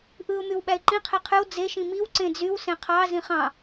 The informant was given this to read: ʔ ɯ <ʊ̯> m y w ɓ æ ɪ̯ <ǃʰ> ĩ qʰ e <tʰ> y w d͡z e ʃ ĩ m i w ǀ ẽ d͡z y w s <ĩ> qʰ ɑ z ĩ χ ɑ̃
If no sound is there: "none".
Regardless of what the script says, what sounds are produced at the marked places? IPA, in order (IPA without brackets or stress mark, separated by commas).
ʊ̯, ǃ, qʰ, ẽ